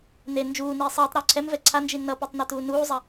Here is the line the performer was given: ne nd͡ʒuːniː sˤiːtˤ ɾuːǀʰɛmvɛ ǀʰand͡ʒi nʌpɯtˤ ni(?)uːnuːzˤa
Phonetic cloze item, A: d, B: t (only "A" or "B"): B